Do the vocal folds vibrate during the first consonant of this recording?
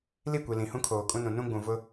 yes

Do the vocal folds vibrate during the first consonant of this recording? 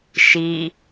no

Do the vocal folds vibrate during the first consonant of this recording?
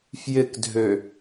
no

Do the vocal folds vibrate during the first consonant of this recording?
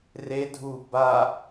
yes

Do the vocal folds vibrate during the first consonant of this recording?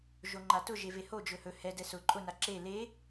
yes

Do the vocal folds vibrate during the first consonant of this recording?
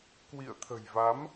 no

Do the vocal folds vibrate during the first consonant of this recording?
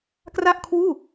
no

